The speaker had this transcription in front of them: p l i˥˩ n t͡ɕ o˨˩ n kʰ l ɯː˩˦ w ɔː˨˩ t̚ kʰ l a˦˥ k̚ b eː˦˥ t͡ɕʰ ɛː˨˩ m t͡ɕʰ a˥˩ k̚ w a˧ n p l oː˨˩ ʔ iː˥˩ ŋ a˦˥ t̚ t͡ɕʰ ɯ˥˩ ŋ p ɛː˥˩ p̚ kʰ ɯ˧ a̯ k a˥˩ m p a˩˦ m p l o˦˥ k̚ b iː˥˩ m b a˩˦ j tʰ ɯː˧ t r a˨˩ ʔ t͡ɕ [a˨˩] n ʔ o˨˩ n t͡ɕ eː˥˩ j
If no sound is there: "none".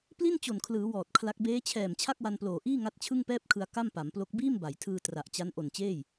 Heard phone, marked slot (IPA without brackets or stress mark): a˦˥